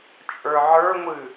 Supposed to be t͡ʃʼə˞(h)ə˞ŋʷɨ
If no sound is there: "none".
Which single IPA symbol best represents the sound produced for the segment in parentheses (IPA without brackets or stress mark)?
ʕ